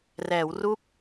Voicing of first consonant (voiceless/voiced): voiced